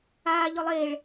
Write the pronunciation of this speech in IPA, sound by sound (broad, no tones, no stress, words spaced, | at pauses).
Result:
aː ʎɔlˠeːɭ